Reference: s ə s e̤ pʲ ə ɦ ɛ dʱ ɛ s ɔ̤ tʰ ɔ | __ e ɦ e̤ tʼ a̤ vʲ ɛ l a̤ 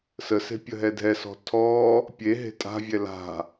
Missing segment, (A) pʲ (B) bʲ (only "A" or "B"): A